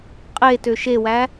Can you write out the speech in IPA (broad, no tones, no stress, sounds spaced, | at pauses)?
qʼ e t ø ʃ e w æ